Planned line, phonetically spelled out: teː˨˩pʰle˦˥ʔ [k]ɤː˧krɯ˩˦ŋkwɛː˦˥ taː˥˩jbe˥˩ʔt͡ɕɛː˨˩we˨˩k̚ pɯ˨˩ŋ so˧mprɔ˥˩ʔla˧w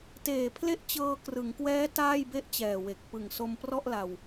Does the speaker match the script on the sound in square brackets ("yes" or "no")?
no